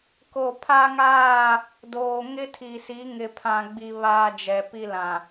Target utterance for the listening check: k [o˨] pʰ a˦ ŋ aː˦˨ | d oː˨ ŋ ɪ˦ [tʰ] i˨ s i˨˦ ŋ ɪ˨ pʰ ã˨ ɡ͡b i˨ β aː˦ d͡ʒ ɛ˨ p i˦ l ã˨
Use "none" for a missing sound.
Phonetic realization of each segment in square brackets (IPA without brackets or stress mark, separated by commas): o˨, tʰ